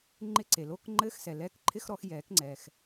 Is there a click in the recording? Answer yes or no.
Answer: yes